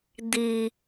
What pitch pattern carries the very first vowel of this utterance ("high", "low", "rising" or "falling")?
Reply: low